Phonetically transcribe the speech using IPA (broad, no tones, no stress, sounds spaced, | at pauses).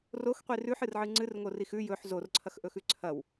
r o x qʷ i r ʉ ħ ɨ r ʕ ɨ ŋ͡ǀ ɨ r ŋ o r i x ʉ j ɵ ħ z o r ǀʰ ɐ x ʔ ɵ x ʉ ǀʰ ɐ w